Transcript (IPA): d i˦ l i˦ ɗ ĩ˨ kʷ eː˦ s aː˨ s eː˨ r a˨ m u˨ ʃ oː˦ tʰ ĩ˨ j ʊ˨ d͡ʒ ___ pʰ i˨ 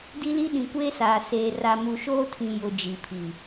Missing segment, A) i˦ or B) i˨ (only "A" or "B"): B